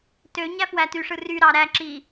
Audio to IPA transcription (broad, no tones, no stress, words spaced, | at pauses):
tø ɲæfwætyʂɯ ry ɾɑɾæ ǁi